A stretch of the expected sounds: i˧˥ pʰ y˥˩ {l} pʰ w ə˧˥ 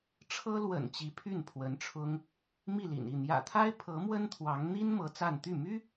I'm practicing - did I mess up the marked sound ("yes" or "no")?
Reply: yes